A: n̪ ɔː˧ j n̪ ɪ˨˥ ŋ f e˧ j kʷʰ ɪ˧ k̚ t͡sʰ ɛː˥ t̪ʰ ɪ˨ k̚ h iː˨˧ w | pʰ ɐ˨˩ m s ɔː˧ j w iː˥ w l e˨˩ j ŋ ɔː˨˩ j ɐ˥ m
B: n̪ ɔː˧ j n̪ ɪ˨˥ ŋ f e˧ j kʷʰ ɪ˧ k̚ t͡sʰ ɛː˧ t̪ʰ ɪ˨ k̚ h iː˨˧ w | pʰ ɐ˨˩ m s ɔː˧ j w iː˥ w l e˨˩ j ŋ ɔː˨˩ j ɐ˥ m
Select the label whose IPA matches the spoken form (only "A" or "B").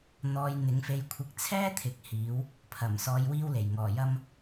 A